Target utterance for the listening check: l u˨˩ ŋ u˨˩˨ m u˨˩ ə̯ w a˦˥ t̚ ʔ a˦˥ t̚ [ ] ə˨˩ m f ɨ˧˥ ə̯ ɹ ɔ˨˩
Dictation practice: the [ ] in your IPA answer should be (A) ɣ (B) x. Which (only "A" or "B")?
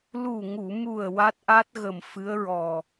A